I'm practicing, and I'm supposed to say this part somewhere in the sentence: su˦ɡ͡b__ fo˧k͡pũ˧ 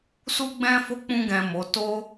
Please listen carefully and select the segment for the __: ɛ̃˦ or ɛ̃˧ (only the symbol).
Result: ɛ̃˦